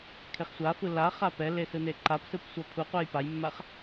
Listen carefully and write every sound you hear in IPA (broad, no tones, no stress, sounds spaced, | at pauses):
kʰ e χ sʷ a f ɯ l a χ a p ɛ l e s ɯ n e ǃ a p s ɯ p sʷ a pʰ u qʷ ɯ j p a j mː a χ